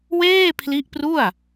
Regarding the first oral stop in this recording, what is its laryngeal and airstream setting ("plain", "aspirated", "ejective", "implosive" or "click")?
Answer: aspirated